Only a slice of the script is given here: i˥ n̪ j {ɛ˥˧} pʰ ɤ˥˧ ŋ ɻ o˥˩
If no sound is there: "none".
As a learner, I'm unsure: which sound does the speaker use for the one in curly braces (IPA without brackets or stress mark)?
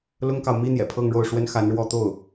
ɛ̰˨˩